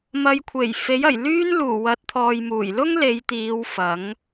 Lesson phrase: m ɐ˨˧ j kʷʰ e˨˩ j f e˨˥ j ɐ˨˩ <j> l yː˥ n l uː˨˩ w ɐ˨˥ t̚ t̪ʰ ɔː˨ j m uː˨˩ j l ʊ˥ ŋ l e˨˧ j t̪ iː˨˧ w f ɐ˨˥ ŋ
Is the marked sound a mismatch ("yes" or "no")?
no